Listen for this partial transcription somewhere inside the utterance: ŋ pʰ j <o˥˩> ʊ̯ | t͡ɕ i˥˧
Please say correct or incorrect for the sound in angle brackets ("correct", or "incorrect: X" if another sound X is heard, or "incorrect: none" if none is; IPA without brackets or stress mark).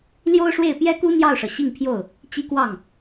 correct